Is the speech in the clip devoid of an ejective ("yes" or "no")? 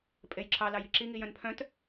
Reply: no